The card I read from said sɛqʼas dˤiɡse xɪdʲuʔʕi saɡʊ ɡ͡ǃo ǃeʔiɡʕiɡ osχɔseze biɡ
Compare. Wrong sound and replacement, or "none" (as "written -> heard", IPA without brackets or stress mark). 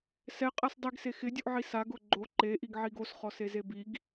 none